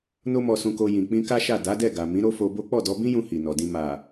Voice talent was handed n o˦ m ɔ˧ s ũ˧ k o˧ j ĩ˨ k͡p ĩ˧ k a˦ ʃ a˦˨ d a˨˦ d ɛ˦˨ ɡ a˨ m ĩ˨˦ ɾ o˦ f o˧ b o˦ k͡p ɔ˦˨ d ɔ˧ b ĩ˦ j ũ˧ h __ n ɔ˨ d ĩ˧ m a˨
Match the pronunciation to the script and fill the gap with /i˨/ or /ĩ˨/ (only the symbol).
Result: i˨